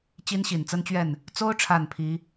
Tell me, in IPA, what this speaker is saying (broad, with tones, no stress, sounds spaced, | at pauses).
t͡ɕ i˦ n ɕ i˨˩ n t͡s ə˦ n t͡ɕ ɥ ɛ˥˨ n | t͡s o˦ ʊ̯ ʈ͡ʂʰ a˨˩ n pʰ i˨˦